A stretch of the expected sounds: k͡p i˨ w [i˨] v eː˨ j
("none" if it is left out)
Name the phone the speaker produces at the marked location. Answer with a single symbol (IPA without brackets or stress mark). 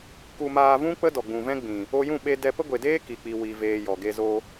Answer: i˨